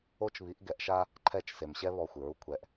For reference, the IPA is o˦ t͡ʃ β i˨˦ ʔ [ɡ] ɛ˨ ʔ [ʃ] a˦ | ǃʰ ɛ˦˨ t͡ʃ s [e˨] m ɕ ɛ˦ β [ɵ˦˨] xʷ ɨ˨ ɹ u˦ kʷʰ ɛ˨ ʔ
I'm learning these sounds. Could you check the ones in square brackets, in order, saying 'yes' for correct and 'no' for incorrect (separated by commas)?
yes, yes, yes, no